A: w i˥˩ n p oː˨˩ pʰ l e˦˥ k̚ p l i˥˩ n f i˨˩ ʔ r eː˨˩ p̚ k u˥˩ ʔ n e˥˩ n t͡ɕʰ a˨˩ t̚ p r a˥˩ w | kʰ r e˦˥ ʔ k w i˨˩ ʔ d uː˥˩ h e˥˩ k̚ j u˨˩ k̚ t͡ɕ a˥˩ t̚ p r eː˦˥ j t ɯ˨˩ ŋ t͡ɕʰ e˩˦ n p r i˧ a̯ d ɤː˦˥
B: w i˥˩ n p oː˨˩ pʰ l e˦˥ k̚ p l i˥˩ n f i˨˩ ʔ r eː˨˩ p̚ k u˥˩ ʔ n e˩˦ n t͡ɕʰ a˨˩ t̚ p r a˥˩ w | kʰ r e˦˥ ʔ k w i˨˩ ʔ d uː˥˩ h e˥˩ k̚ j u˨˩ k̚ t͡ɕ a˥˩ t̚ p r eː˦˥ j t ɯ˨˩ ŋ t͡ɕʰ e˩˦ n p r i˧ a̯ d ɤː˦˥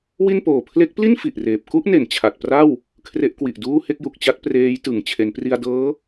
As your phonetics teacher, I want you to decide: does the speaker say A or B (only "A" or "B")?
B